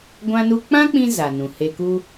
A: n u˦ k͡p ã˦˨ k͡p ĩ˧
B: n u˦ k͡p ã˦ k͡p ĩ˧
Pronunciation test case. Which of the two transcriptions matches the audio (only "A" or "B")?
B